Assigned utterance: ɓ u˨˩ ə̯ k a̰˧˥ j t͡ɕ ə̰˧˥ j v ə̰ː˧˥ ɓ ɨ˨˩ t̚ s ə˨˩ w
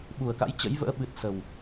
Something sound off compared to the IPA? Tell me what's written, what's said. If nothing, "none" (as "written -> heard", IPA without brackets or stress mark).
none